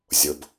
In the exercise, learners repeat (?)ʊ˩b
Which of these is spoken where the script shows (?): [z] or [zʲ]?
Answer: zʲ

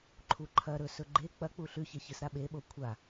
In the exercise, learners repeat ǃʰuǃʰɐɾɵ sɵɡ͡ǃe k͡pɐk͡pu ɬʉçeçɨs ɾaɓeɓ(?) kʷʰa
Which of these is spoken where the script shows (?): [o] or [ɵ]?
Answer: o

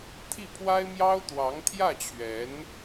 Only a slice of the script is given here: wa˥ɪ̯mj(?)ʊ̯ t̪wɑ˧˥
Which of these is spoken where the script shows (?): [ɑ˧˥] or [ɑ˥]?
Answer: ɑ˥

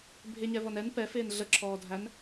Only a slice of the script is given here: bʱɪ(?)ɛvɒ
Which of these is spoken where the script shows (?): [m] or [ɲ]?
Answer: ɲ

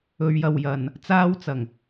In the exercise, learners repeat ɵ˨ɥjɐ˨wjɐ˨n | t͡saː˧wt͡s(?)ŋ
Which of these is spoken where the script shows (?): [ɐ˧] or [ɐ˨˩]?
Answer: ɐ˨˩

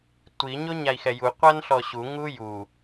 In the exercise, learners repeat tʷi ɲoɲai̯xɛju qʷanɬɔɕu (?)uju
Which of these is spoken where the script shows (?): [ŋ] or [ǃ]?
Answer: ŋ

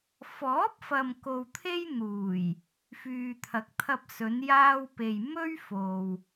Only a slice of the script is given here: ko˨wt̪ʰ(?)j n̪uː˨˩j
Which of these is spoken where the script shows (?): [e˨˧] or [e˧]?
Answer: e˧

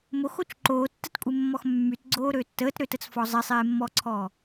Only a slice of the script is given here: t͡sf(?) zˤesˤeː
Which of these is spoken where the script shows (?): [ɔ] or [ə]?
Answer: ɔ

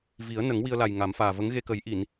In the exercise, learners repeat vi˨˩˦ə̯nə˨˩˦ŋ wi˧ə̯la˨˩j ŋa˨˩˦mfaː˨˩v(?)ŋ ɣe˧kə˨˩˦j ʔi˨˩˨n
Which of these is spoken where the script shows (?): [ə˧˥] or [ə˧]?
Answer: ə˧˥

